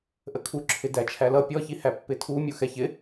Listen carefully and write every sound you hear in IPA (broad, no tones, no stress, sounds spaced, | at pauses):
ʔ ə kʰ u ǁʰ ɪ d æ t͡ʃʰ æ l ʌ pʲ ɔ ç i h æ pː ɪ tʰ u mʲ u x ɛ ç ɪ